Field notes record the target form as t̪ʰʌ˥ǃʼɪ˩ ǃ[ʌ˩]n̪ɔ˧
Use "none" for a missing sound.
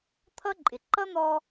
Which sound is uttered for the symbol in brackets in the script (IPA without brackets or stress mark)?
ʌ˥